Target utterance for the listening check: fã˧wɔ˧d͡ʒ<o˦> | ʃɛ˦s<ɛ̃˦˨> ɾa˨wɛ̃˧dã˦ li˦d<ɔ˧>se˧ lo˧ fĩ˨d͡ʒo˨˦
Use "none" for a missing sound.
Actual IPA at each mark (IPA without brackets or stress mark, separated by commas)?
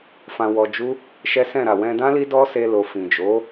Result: u˦, ɛ̃˦˨, ɔ˦